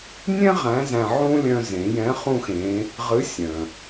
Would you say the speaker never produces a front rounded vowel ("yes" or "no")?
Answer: no